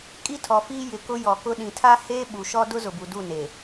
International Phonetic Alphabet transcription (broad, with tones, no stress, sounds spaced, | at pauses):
kʼ i˦ tʰ ɔ˨ f iː˦ j ɪ˨ k ʊ˦ j ɔ˨ k ʊ˦ ɗ ĩ˨ tʰ a˦ h eː˦ ɓ u˨ ʃ ɔ˦ d ʊ˦ z ʊ˨ b u˨ d u˦˨ n eː˨